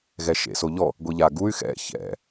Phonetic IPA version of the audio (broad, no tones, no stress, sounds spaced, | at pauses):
ɣ ɛ ʃ ḛ s o ʎ ɔ | ɡʷ i ʎ a ɡ u y̯ x ɛ̰ ç ɛ̰